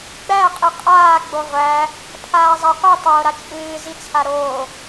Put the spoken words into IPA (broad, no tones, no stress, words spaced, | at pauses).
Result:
ɡ͡bæ qʼiqʼaː ɡ͡boʁʷæ | pʰaːzˤaqʷi tˤoːɾat͡ʃʼɨː zit͡sʰaɾoː